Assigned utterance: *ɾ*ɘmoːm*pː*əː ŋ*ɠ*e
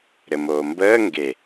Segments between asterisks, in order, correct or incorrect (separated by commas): correct, incorrect, incorrect